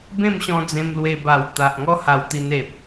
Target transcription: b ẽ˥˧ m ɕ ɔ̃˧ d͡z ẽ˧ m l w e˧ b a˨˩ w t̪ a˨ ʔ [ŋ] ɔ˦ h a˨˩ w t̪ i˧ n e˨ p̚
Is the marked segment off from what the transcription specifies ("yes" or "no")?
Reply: no